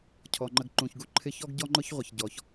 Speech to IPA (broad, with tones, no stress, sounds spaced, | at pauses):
cʰ ɔ˩ ŋ͡ǃ ə˨ ɡ ǃ ũ˩ ç ɡ u˦ ǃʰ ɪ˦ ç ɔ˥ ɡ ɟ ɔ˥ ŋ͡ǃ ʊ˥ ç ʁʷ ɪ˩ ç ɟ ɔ˩ ç